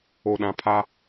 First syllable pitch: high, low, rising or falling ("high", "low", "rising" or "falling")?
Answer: low